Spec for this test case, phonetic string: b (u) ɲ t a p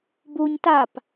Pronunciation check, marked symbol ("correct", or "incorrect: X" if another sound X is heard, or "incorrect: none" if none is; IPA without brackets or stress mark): correct